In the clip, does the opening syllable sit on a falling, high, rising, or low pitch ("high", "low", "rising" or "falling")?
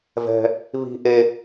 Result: high